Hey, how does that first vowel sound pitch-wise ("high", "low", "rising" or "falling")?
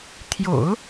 low